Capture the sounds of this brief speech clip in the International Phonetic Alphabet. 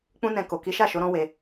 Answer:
k͡pũ˦nɛ̃˧ ko˨ki˨˦ʃa˦˨ʃo˨˦ ɾɔ̃˦we˧

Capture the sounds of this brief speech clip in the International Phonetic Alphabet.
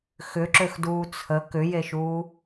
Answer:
xʏǁøxduː t͡sʰə kʏjeʃuː

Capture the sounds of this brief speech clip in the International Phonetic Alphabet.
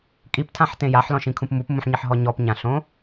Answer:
kʼiptʰãħtẽ jaħlɔ̃ʃĩkʰũp mupmũħɲiħɦɔ ɲɔpɲãɬõ

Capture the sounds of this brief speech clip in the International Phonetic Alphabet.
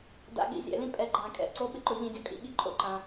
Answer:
da̰˧˥˧ɠḭ˧˥˧zʲɛ̰˨˩˦lĩ˥ pʼɛ˨˥ ɡ͡ǃã˨˩˦kʼɛ̰˨˩˦ ǀo˧˥˧ɓɪ˥ǃʊ˨˩˦ ʎĩ˨˩˦dʲɔ˨kʼḭ˧˥˧ɠi˧˥˧ ǃʼo̰˥˨ǃã˨

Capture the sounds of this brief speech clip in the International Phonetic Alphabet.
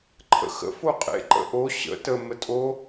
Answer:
ǃʰə̰xə̰ foqʼḛ ǃə̰ʔo ɕə̰ tə mətʼo

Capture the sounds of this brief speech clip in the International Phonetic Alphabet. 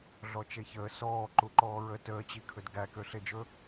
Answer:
ɮɔt͡ʃeçəː sɔː ǃuǃɔːɹə təːt͡ɕikʰɵd ɡækøɬed͡ʒɵ

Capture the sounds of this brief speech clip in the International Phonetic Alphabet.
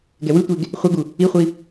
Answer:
ɡɛwɯtʷeɡ | χʷɛɡu | iχʷi

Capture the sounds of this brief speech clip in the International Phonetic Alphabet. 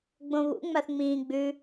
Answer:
ɡ͡bõβṵ ŋ͡maθŋ͡mĩː ɡ͡bʉ

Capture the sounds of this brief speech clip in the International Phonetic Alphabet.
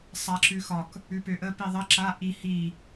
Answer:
sˤaǁʉxɒk | ʉpøʔə piðˤə ǁa ʔi hi

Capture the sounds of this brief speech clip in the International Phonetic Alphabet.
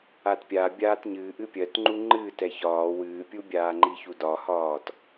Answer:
atpʲa bʲaːtɲɨː ʔɨpʲɜt ŋ͡ǃuŋ͡ǃɨːt ɛçɒː wɨːpʲubʲaː ŋ͡ǃiçudɒhɒːt

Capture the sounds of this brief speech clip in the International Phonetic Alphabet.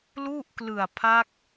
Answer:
lu˥˩ʔklɯ˨˩a̯ pʰa˦˥k̚

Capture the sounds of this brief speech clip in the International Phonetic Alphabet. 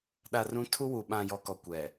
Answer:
ɗa˨rũ˨˦ tʰu˦wu˨ ɓã˨ jɔ˨kɔ˨kʷɛ˨

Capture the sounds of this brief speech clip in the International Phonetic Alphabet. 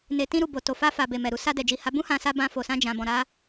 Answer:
ne˧tĩ˦ɾu˦˨ bo˨to˨fa˧fa˨ be˨mɛ˨ɾu˧ sa˧dɛ˨d͡ʒi˨ha˨˦ bũ˦hã˧sa˧ bã˧fo˨sã˧ d͡ʒã˨bɔ̃˨ ɾa˧

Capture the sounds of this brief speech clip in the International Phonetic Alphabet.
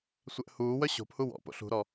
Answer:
sʷɛʔhuːwœ ɕo̤phu wɔ̰po̰ ɬṳɾɔ

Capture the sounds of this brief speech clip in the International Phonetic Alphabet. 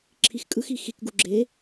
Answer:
ǁʰixkʼɯxi xikɡu ɡ͡ǁe

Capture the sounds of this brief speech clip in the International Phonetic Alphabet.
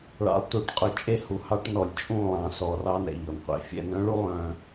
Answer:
ɭɑ̰˨lˠtu˨ʈqʼɵ˨ t͡ʃʼe˦hu˨hɑ˦ʈnɔ˨lʲ t͡ʃʼũ˦˨lˠɑ̃˨sɔ˨ rɑ˦nɛ̰˨ʎɔ˨nqʷḛ˨ fʲɛ̰˨nœ̃˦ɭu˦ lˠœ̃˦

